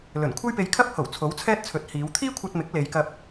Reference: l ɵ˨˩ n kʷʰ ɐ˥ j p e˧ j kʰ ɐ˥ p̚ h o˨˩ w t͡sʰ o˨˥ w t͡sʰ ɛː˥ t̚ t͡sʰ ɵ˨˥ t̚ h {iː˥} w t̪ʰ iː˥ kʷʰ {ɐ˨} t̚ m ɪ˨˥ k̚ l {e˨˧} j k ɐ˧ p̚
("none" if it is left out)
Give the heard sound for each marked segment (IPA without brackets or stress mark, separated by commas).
iː˨˧, ɐ˧, e˨˧